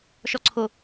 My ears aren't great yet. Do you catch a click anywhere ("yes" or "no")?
yes